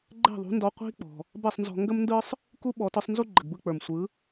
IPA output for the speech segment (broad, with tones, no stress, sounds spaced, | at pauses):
ɡ͡ǃ ɛ̤˥˩ ðˤ ṳ˩˥ n d ɔ˧ qʷ i̤˥ k͡p ɔ̤˩ | b ɛ˥˩ sˤ n z ɔ̤˧ ŋ ɡ ə˥ m n d ɯ˥ sˤ | k u˥ ɓ ɔ˩˥ t ɯ˩˥ sˤ n z u˥ ɡ͡ǃ ə˩ ɡ b ɯ˥˩ k͡p ə˞˩ m sʷ ɯ˩˥